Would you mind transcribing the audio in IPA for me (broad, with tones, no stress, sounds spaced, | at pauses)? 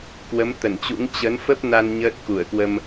k w ə˨˦ m t̪ ə˧˩ n t͡ɕ ṵ˧˥ ŋ t͡ɕ ə˨˦ n f ə˦˥ p̚ n a˧ n ɲ əː˦˥ t̚ k u˧˩ ə̯ k w ə˧ m